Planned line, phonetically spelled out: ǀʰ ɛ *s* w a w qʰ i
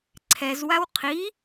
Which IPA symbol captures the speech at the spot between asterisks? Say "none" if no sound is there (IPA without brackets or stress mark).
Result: z